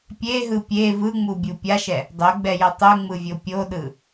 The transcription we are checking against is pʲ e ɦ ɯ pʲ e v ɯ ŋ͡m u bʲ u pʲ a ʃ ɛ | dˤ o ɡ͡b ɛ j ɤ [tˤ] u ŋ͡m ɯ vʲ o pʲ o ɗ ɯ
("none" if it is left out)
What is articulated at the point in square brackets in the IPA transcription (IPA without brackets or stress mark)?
tˤ